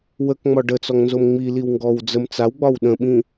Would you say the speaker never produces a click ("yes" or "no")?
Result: yes